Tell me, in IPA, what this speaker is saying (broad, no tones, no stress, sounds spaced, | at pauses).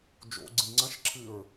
d͡ʒ o̰ ɡ͡ǀ ĩ ŋ͡ǀ ɐ̃ ʃ ǁʰ ɨ ɹ